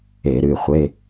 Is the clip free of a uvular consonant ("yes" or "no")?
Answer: no